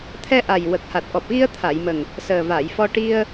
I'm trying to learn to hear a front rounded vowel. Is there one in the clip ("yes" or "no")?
no